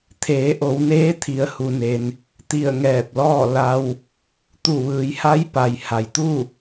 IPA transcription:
t̪ʰ eː˩˧ ʔ o˩˧ w n eː˧˥ t̪ʰ i˧ ə̯ h u˧ n e˧ n | t̪ i˧˩ ə̯ ŋ ɛː˧˩ p̚ l ɔː˥˨ l a˧ w | t̪ u˧˩ ʋ ɯː˩˧ j h a˧˥ j p a˩ j h a˩ j t̪ u˥˨

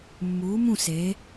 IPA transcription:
mː uː˩˧ m ũ˧˩ s e˩˧

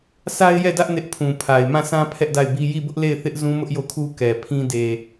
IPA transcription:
sʰ a˦ ɪ̯ j ɛ˦˨ d ä˦ ʔ n ɪ˦ ʔ pʰ ũ˨ pʰ a˨ ɪ̯ m ã˦˨ s ã˦ pʰ ɛ˦ ʔ d a˦˨ ɪ̯ b i˦ j i˦˨ b ʊ˦ ʔ l e˦˨ ɪ̯ θ ɪ˦ ʔ z ũ˦ m ʊ˦ ʔ j o˦˨ kʰ u˦ k ɛ˨ pʰ ĩ˦ d e˨

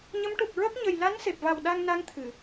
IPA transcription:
ɲ ə˧˥ m ʈ u˨˩ k̚ ɹ ə˦˥ k̚ ɲ ə˨˩ j l a˧˥ n s e˨˩ p̚ v a˨˩ w ɗ a˧ ŋ n a˧˥ ŋ t̪ʰ ɨ˨˩˨

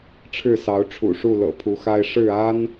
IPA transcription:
ʈ͡ʂʰ ɻ̩˥˨ s ɑ˨˦ ʊ̯ ʈ͡ʂʰ ṵ˨˩ ʂ u˥˨ l ɤ̰˨˩ pʰ u˨˦ x a˦ ɪ̯ ʂ ɻ̩˥˨ a˦ n

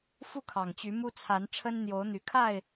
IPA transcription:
f u˥˨ kʰ ɑ˨˩ ŋ t͡ɕ y˨˦ m u˦ t͡sʰ a˨˦ n ʈ͡ʂʰ ə˦ n n̪ j o˨˦ ʊ̯ n̪ y˨˩ kʰ a˥˨ ɪ̯

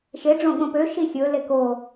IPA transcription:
ʃ e ɖ͡ʐ õ ɠ õ p ø ʃ i xʲ ɵ l e k o

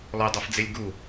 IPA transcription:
lˠ o dˤ ɤ f d͡z e lʲ ɡ u

